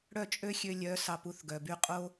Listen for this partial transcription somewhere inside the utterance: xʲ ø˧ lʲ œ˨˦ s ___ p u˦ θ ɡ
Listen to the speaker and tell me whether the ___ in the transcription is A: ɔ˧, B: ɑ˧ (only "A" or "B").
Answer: B